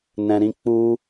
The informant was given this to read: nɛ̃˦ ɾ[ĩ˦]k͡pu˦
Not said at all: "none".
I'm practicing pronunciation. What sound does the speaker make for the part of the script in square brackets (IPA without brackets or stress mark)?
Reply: ĩ˦